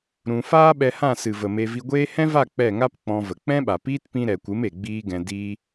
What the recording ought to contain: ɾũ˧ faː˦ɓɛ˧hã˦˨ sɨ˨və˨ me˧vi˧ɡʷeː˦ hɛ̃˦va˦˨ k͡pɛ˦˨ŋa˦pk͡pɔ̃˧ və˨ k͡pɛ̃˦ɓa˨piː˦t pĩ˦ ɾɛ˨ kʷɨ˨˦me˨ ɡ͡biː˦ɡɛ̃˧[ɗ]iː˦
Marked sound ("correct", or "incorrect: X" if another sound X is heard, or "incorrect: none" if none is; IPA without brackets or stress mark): incorrect: d